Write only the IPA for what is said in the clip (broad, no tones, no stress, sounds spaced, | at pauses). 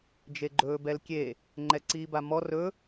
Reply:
d͡ʒ e ɡ͡ǃ ɵː b ɛ l kʲ e | ŋ͡ǃ ɛ ǀ iː b a m ɔ r ɵ